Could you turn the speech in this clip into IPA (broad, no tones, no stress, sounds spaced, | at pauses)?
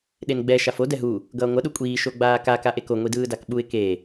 ɗ e n ɡ͡b ɛ ʃ a f o d ɛ ɦ u | ɡ ʌː ŋʷ ʌ ɗ u kʷʼ iː ʃ o ɡ͡b aː k a k a ʔ e k o ŋʷ i d ɯː d a k ɓ u ɪ̯ k e